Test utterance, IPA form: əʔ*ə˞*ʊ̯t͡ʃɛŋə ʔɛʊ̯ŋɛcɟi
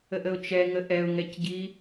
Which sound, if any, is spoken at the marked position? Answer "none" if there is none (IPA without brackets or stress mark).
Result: ə